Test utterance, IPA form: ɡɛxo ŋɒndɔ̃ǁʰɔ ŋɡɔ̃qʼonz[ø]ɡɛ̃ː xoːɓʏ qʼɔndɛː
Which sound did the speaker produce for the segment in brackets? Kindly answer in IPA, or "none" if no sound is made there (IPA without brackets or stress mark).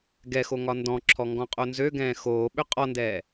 ø